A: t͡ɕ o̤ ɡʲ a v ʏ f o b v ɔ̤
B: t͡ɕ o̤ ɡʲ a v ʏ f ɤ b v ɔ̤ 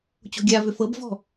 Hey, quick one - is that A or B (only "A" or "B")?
B